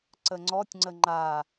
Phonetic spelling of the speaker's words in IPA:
ǀ ə ŋ͡ǀ ɔ tʲ ŋ͡ǀ ə ŋ͡ǃ a

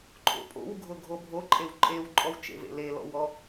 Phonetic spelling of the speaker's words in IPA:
ǃʼ o̰ pʼ o̰ w ɡʱ ʊ ɡʱ o bʱ o ǃʼ e w ǃʼ e w ǃʼ ɔ w t͡ʃ ḛ v ḛ l e l ɔ̰ w ɔ

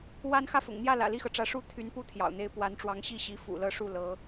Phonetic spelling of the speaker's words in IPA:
w a˥ n x ä˥˩ f ʊ̰˨˩ ŋ n̪ j ä˥˩ l ä̰˨˩ l i˥˩ x ɤ˩ ʈ͡ʂ ä˧˥ ʂ u˥ t̪ʰ y˧˥ n p u˥ t̪ʰ j ɑ̰˨˩ ʊ̯ n̪ e˥ ɪ̯ p w a˧˥ n ʈ͡ʂ w ɑ˧˥ ŋ ɕ i˥˩ ɕ i˧˥ f ṵ˨˩ l ɤ˥˧ ʂ u˥˩ l ɤ˧˥

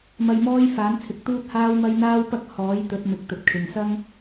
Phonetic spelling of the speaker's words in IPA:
m ɐ˧ j m ɔː˥ j f aː˨˥ n t͡sʰ ɪ˨˥ k̚ t̪ uː˥ t̚ h aː˥ w m ɐ˥ j n̪ aː˥ w p ɐ˥ k̚ h ɔː˨˥ j t̪ ɵ˨˥ t̚ m ɪ˨˥ k̚ t̪ ɵ˨ t̚ kʰ ɪ˨ ŋ s ɐ˥ ŋ

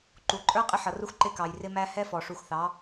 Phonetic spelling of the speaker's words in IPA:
ǃ u˨ ǃʼ ə˞˦ qʼ ɪ˦ ħ ʌ˨ r u˦ x ǃ ɪ˦˨ k ɑ˨ j r ɪ˦ m æ˦ h ɛ˦ f ɔ˨ ʂ u˨ x θ ɑ˨˦

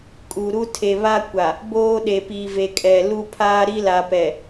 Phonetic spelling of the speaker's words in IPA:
kʼ u˨ ɾ u˦ tʰ e˨ β a˦ kʷ a˨ | b oː˦ ɗ e˨ p i˨ v e˨ kʼ ɛ˨ l u˦ pʰ aː˦ ɾ i˦ l a˨ p ɛ˨

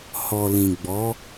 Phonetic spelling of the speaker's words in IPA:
h ɔ˨ l ĩ˨ ɡ͡b ɔ˨˦

